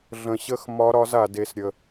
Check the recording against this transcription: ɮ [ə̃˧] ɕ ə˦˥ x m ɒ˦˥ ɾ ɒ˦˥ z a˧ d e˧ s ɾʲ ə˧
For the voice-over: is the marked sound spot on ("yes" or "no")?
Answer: yes